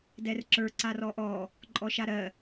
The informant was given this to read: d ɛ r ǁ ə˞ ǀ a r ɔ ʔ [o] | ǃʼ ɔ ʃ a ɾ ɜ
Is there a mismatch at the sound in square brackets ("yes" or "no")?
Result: yes